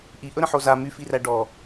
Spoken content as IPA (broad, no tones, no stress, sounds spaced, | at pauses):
ʔ i ʔ ɵ ɾ ə̃ ħ o z a m y f i r æ ɖ ɔ